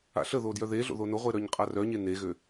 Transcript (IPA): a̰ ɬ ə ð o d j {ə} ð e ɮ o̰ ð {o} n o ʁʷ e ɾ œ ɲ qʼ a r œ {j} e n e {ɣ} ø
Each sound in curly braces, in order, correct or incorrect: incorrect: œ, correct, incorrect: ɲ, correct

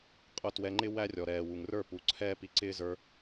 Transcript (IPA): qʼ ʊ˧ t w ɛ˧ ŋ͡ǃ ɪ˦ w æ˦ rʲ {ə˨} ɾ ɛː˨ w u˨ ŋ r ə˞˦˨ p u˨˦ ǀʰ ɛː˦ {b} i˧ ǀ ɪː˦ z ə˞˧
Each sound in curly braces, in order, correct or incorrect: incorrect: ɔ˨, incorrect: p

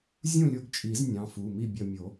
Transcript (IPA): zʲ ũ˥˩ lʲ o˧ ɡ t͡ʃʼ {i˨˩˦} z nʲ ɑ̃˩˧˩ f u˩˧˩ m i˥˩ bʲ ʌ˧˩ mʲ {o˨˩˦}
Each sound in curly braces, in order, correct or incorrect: correct, correct

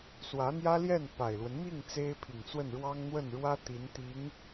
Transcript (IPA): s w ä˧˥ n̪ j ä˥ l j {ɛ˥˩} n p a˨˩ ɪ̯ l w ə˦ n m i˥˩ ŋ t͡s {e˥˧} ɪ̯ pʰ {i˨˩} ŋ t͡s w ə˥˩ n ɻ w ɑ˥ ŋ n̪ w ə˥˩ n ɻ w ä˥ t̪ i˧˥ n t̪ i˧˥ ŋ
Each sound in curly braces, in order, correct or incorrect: correct, incorrect: e˥, correct

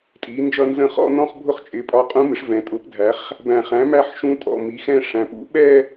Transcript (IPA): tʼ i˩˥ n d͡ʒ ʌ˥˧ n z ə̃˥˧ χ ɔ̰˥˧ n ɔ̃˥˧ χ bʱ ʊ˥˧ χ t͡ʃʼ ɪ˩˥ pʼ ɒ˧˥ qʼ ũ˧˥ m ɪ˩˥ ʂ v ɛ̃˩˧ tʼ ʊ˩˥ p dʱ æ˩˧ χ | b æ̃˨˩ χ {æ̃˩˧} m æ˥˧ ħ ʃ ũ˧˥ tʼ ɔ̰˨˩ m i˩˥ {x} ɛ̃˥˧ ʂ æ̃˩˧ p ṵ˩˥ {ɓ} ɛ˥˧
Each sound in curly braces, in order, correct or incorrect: incorrect: æ̃˩˥, correct, correct

